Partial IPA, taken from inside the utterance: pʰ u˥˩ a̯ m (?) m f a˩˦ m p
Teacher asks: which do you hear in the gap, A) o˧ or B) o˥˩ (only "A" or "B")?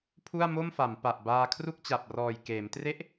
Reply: B